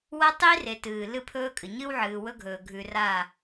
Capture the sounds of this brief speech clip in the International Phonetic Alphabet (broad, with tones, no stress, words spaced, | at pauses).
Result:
wɐ˦tˤi˦re˨ tɨː˨lɨ˦pʰɵː˦kʼɨ˨ ɲɨ˦wʕɨː˨wɵ˦ɡʱɵː˨ ɡʱʉ˨ra˦˨